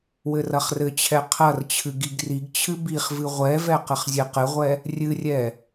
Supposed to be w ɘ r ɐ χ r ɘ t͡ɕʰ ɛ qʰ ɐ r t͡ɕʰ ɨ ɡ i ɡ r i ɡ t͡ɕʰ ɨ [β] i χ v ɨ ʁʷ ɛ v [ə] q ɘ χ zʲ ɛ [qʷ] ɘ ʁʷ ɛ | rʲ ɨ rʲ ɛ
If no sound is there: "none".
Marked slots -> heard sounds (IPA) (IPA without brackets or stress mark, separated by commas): b, ɛ, q